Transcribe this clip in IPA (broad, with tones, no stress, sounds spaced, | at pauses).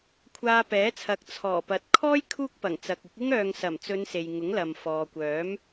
kʷʰ aː˧ p ɛː˨˥ t͡sʰ ɐ˨˥ k̚ t͡sʰ ɔː˨˩ p ɐ˨ t̚ kʰ ɔː˥ j kʰ uː˥ k̚ p ɐ˨˩ ŋ t͡s ɐ˨ k̚ ɪ˨˥ k̚ ɪ˥ ŋ œː˨ ŋ s ɐ˨˩ m t͡s ɵ˨˧ n s e˨ j ŋ ʊ˨˥ ŋ l ɐ˨ m f ɔː˨ kʷ œː˨˥ m